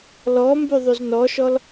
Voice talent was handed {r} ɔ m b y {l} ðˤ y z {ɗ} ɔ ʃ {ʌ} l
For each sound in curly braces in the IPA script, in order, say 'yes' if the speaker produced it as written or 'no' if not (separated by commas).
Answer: no, no, no, no